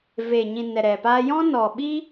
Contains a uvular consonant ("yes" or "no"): no